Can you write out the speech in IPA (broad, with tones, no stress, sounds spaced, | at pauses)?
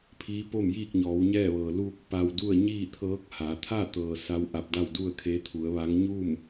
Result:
pʰ iː˧˥ p o˥˨ m j iː˥˨ k̚ ɲ ɔː˩˧ w ɲ ɛː˥˨ ʋ ɤː˩ l uː˧ k̚ p a˧ w d u˥˨ ə̯ ɲ iː˥˨ t̪ʰ ɤː˧˥ k̚ h a˩˧ t̪ʰ a˥˨ t̪ ɤː˩ s a˧˥ w ʔ a˧ p̚ d a˥˨ w d u˥˨ ə̯ kʰ e˧˥ t̪ʰ u˩˧ ə̯ ʋ a˧˥ ŋ ɲ uː˥˨ m